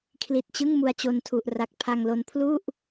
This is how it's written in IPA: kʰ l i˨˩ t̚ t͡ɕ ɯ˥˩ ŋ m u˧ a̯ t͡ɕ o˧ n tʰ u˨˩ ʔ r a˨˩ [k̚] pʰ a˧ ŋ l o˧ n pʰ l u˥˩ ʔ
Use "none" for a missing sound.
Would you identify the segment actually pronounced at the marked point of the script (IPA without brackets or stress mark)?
k̚